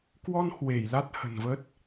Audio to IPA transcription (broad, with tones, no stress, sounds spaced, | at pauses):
k w ɔ˧ n h w e˧˩ j l a˦˥ t̚ h ə̤˨˩ n v ə˦˥ t̚